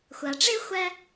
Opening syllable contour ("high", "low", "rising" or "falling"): low